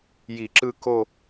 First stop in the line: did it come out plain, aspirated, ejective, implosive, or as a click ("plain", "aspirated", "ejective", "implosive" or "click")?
click